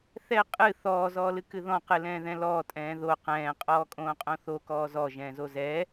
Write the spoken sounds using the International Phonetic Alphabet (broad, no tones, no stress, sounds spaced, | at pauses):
θ ɛ qʼ ɨ θ ɔː z ɔː l ɨ k ɨ ð ɔ̃ q ɨ l ɛ̃ː ð ɛ̃ l ɔː tʼ ɛ̃ː ð o q ɛ̃ː qʼ ɔː kʼ õː qʼ õ θ o k ɔː z ɔ ʒ ɛ̃ː z o z ɛ